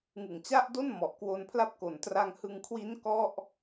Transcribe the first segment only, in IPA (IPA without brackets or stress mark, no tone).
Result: ŋ